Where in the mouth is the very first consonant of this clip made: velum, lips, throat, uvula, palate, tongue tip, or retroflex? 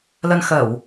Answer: tongue tip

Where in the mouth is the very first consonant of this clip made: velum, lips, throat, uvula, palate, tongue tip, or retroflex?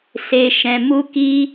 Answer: tongue tip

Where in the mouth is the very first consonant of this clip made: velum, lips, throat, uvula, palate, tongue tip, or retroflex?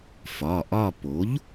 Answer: lips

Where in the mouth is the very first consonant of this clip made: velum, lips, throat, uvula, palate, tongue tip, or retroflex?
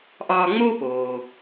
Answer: throat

